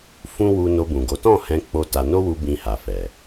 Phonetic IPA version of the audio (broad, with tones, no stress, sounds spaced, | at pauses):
f ũ˦ w u˧ n o˧ b ũ˨ ɡ o˨˦ t ɔ̃˦˨ h ɛ̃˧ k͡p o˦ t a˧ n o˦ w u˧ b ĩ˧ h a˨ f ɛ˨